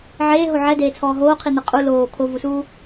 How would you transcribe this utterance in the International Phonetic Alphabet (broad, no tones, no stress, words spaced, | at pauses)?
ʕeːɦo ʕɛdeːt͡sʰɔː ɦoːqʰin̪e qʼu loː kʰovusuː